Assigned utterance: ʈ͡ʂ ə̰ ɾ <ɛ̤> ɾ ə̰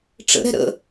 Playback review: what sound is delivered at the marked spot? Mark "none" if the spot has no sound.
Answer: ɛ̤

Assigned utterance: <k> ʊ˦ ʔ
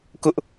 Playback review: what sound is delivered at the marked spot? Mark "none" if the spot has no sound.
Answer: k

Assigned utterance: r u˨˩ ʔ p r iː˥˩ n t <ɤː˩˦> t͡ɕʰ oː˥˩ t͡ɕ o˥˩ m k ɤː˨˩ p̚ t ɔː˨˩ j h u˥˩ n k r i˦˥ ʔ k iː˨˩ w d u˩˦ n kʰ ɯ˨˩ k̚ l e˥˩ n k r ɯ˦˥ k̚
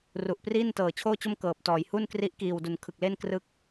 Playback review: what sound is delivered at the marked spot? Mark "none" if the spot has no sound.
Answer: ɤː˨˩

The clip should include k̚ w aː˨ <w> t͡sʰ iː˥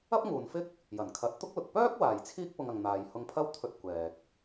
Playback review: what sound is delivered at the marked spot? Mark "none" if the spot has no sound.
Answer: j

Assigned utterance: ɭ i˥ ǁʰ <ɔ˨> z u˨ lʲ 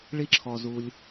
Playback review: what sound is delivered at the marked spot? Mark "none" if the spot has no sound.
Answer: ɔ˨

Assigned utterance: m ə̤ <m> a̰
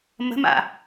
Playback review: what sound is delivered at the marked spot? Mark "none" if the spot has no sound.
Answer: m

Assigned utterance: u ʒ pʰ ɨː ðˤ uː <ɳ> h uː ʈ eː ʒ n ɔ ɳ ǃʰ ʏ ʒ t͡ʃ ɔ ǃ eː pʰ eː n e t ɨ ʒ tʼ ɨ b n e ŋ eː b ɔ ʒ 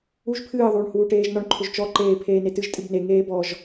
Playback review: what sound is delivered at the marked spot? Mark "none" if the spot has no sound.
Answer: ɳ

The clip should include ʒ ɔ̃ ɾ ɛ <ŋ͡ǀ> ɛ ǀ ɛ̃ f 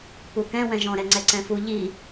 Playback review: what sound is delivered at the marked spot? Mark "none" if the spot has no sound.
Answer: ŋ͡ǀ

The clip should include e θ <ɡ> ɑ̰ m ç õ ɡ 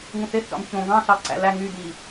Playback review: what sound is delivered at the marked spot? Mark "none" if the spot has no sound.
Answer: ɡ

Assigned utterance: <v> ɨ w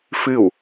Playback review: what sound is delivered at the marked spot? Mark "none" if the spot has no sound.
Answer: f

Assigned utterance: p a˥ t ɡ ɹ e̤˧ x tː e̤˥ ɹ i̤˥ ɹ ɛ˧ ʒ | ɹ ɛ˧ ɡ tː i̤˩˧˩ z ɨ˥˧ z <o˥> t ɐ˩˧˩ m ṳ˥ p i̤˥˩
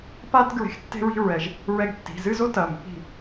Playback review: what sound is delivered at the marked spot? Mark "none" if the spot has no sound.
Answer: o˥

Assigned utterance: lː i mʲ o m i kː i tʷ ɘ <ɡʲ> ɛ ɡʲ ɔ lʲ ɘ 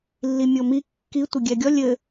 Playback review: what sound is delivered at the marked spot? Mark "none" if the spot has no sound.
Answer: ɡʲ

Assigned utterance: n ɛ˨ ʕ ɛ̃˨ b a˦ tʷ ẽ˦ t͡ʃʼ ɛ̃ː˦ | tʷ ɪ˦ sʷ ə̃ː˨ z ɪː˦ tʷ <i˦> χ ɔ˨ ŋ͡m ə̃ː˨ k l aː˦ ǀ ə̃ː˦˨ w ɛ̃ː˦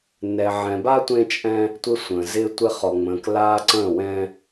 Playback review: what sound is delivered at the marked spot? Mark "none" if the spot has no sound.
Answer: ɪ˦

